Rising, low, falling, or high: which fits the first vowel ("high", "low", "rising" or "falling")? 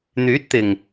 rising